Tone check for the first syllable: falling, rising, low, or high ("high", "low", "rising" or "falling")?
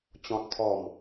high